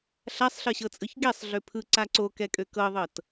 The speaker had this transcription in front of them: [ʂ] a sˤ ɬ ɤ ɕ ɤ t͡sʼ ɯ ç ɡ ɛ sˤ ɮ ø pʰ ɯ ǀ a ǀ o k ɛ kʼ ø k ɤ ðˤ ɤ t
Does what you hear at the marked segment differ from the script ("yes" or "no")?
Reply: yes